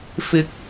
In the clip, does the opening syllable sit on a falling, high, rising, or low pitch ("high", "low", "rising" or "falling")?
rising